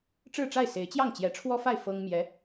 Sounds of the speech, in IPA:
ʈ͡ʂɻ̩˥˧ʈ͡ʂa˥˩ɪ̯se˧˥ɪ̯ t͡ɕjɑ˥˩ŋt͡ɕjɛ˧˥ʈ͡ʂʰwɔ˥fa˥˩ɪ̯ fɤ˥ŋmjɛ˧˥

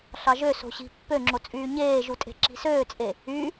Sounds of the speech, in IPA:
ɬɑʒø so̤ɕi̤ pːøŋ͡ǁot͡sʼyː ɲeːʒutʼe̤ ǁi̤søːt͡sʼe | y

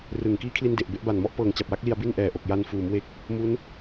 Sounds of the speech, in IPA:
rɯ˨˩ŋ kiː˦˥kʰli˧nde˨˩ʔ be˥˩ʔba˨˩nmɔ˦˥ʔ pɤː˨˩ŋt͡ɕa˨˩p̚wa˦˥k̚li˧a̯ bi˥˩nʔɛː˨˩ʔo˨˩k̚ja˧n fuː˩˦m we˥˩k̚ | mu˦˥n

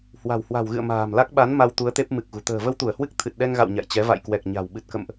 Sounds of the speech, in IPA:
hwa̤˨˩whwa̤˨˩wɣɨ̰˧˨ə̯ ma̤ː˨˩mla˦˥k̚ ɓa˨˦n ma˧wt̪u˨˦ə̯t̪e˦˥p̚ mɨ˨˩k̚ɣṳ˨˩ t̪ə̤ː˨˩və˧wt̪u˧˩ə̯hwɨ˦˥k̚ t̪ʰɨ˨˩t̚ɗɛ˧ŋɣa̰˧˨w ɲa̰˧˨jt͡ɕɛ˨˦ va̰˧˨jkwɛ˨˩k̚ɲa̤˨˩w ɓɨ˨˩t̚kə̰˧˨mʔ

